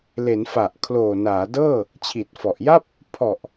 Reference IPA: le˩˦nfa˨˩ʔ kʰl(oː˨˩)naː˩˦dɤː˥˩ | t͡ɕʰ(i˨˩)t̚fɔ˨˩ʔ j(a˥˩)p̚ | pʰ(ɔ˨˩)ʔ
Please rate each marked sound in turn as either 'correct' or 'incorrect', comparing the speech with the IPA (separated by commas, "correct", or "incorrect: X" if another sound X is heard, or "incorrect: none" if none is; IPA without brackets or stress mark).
correct, correct, correct, correct